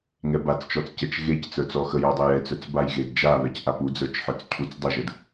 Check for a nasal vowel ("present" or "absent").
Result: absent